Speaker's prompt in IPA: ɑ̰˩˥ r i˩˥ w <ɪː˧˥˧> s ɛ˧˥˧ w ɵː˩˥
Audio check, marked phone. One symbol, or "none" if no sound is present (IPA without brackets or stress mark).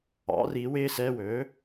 ɪː˧˥˧